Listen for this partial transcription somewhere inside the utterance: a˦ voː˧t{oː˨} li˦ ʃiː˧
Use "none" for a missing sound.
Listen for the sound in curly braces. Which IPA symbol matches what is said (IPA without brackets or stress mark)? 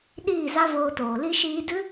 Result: oː˨